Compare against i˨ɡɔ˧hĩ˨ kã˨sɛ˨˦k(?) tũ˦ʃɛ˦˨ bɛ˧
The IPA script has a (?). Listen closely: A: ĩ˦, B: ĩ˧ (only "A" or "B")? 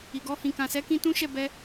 B